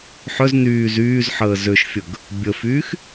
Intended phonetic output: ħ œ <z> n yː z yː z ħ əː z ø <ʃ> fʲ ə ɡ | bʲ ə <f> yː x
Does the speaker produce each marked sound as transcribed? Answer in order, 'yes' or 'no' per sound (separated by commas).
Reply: yes, yes, yes